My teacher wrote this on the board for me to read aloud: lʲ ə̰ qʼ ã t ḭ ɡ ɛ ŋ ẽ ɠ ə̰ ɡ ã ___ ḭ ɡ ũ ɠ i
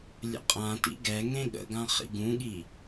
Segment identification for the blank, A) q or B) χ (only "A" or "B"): B